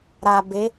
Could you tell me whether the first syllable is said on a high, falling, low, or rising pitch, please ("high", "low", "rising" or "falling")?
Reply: low